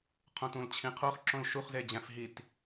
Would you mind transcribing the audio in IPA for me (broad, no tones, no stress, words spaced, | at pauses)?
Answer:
qʰõtũlt͡ɕʰĩqʰoχ ǁõlʃuχ zed͡ʑæ̃fɦit